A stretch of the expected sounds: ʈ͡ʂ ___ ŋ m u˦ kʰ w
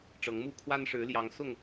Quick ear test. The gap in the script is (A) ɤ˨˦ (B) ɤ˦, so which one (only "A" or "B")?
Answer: A